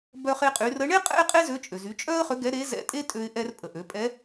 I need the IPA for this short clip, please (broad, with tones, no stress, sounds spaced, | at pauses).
b œ˧ χ e˧ qʼ y˩˧ r ə˧˥ ɳ e˥ qʼ ɛ̰˥ ɪ̯ qʼ e˥ z ø˧˥ t͡ʃʼ ø˩ z y˩˧ t͡ʃʼ œ˥ ə̯ χ ø˧˥ ɡ ɛ˧˥ ɾ e˧˥ z ɛ̰˧ tʼ e˥ tʼ ø˧ ɪ̯ ʔ ɛ˧ r pʼ ə˩ ʔ ø˩˧ pʼ ɛ˧˥